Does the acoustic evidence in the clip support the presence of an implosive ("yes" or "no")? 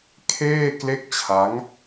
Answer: no